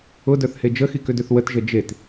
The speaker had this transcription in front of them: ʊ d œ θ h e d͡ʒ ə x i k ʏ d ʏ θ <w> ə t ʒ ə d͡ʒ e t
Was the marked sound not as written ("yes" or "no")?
no